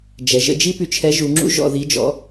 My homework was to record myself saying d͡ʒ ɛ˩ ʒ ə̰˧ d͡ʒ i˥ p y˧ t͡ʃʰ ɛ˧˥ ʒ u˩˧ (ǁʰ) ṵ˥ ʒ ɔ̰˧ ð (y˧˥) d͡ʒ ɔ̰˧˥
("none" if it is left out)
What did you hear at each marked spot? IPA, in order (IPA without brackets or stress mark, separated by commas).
ŋ͡ǁ, i˧˥